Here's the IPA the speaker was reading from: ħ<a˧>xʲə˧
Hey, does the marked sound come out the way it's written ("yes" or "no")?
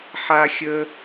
yes